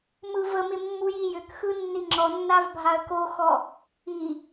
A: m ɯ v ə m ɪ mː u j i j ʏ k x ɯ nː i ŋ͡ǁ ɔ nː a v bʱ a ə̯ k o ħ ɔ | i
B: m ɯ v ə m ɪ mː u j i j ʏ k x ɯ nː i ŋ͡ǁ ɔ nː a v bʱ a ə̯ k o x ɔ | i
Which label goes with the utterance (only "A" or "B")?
B